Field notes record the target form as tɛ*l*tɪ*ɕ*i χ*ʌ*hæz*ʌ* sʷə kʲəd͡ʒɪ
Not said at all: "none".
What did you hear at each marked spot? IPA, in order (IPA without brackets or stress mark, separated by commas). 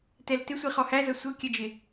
l, sʷ, ɔ, ʌ